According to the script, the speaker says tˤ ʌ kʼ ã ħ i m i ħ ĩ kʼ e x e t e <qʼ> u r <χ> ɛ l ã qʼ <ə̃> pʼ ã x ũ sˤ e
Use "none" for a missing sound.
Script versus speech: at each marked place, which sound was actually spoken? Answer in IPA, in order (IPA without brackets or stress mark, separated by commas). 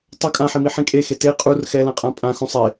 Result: qʼ, x, ã